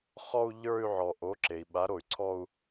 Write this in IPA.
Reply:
χ ɔ˥˧ u̯ ʎ ə˞˥˧ y̯ ʕ ɔ˩ ʔ o˩˥ ǁ e˩ i̯ ɓ a˩˥ ɾ o˩ y̯ ǀʰ ɔ˥˧ u̯

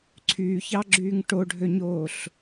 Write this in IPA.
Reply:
ǀʰ yː ç ɑ ɡ͡ǁ yː ŋ ʈ o ɖʱ ø ɲ oː ɬ

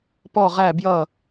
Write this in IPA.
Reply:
p ɔ ʁ æ b j ʌ

